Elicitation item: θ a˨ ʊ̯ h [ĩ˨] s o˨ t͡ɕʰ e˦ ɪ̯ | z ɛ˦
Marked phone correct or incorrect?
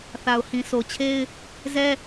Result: correct